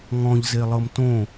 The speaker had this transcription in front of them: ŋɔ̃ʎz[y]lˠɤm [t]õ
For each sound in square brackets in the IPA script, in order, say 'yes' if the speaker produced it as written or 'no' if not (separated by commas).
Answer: no, yes